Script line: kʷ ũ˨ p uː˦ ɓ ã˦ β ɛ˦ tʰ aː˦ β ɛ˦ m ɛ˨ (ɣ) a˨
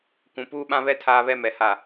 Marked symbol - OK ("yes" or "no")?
no